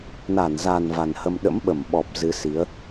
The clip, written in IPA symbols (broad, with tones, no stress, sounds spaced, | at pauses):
n a˧˩ n z a˨˩ n v a˨˩ n h ə˧ m ɗ ə̰˧˥ m ɓ ə˧˩ m ɓ ɔ˨˩ p̚ z ɨ˨˦ s i˨˦ ə̯